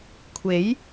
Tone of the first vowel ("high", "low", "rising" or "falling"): rising